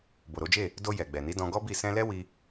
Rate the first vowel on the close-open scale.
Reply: mid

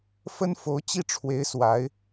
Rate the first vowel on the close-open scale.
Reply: mid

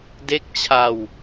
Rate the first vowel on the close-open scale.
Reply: mid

